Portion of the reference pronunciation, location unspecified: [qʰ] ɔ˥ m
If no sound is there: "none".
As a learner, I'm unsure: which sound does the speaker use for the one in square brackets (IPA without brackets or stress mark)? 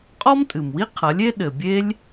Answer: qʼ